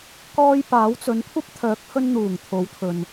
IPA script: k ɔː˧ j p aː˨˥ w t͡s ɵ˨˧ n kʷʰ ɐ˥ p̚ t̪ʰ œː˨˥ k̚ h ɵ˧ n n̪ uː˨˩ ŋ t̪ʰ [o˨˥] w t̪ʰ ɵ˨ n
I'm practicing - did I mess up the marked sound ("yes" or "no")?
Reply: no